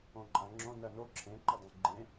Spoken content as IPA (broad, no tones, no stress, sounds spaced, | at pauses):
õ ǃʼ ã ŋ͡ǁ õ n ɜ n o ǁʰ ẽ ǃ ə dˤ ẽ ɡ͡ǃ ẽ